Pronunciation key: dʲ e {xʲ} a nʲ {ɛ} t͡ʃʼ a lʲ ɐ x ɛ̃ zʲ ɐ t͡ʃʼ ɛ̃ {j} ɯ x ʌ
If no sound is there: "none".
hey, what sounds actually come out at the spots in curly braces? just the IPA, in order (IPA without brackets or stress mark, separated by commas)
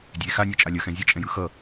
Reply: x, ɛ, j